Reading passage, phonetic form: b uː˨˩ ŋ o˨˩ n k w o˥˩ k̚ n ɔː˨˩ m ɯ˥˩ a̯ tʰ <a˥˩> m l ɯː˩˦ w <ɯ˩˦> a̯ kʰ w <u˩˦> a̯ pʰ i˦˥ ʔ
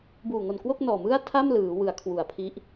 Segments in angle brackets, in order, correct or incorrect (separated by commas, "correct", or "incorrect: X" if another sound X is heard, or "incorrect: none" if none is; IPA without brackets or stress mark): correct, correct, correct